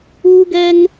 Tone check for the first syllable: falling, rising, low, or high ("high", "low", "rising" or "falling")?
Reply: high